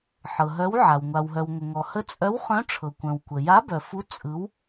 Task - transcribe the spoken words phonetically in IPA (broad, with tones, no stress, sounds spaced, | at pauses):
ħ ɤ˩ ɦ œ˨˥ w ʕ a˩ w ŋʷ a˩ w ɦ œ˩ w ŋʷ ə˩ ŋ ɔ˩ h ə˨˥ t͡sʼ œ˨˥ w χ œ̃˨˥ ʈ͡ʂʰ ɤ˩ kʷ œ̃˩ w kʷ ə˩ j a˨˥ b œ˩ f u˨˥ t͡sʼ ɯ˨˥ w